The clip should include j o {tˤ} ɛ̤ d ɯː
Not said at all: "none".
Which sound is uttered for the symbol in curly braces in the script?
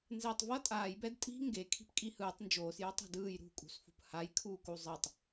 tˤ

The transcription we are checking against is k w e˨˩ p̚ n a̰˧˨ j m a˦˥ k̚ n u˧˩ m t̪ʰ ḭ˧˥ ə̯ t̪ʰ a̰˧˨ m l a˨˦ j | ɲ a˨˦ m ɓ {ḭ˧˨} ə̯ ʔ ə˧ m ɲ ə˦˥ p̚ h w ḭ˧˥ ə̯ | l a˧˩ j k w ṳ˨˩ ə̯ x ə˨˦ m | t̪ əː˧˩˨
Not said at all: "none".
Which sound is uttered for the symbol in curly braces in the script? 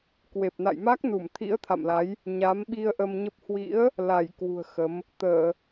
i˧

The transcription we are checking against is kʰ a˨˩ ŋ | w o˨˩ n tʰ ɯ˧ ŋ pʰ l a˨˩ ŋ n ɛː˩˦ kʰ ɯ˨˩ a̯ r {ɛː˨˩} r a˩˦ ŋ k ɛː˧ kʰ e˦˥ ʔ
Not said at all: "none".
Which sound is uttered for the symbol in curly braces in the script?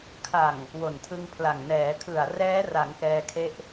ɛː˦˥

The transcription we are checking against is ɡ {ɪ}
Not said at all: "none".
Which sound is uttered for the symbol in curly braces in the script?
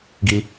i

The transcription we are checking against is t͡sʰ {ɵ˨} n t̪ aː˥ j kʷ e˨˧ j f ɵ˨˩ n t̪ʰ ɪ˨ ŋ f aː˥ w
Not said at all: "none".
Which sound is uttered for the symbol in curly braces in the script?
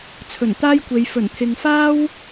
ɵ˨˩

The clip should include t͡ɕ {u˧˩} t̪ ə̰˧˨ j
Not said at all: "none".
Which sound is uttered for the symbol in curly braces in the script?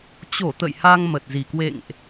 o˧˩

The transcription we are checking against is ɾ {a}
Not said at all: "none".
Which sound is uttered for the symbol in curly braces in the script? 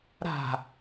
a̤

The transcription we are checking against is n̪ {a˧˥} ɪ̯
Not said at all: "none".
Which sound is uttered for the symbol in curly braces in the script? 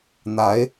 a˧˥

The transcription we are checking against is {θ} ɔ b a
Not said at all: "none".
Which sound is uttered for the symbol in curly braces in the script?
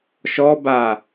ʃ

